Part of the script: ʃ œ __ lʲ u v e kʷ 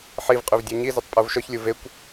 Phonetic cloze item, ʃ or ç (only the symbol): ç